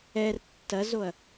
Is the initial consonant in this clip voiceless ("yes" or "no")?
no